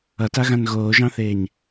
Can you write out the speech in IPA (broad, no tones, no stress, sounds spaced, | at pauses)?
ʌ t a ɣ ã n ɣ oː ʒ ɑ̃ θ eː ɲ